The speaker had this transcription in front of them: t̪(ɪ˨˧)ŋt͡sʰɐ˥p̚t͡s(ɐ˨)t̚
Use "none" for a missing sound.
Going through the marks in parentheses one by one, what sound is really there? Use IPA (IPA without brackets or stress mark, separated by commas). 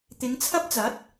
ɪ˨˧, ɐ˨˥